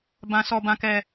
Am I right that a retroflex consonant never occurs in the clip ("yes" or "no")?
yes